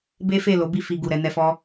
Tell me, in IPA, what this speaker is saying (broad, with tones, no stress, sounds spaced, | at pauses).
b e˦ f e˦˨ l o˨˦ b i˦˨ f i˧ ɡ u˨ ɾ ɛ˧ n ɛ˧ f ɔ˦